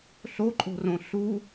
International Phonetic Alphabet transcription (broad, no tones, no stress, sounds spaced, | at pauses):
ɬ o ǃʼ o̤ r õ ɬ u